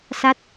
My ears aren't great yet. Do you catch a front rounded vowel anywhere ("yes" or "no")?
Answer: no